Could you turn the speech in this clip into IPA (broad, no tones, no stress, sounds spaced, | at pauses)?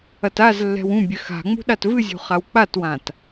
ɐ t a z lː ɛ̤ w ũ bʲ ɘ x a̤ ŋ͡m ṳ ɗ a t v ɨ zʲ ṳ χ a w k͡p a t w ã t